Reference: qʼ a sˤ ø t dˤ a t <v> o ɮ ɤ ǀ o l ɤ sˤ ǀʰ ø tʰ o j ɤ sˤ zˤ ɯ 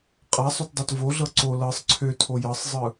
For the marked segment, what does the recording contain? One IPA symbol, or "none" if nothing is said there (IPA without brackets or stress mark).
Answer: v